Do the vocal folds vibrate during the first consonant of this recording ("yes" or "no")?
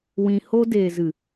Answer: yes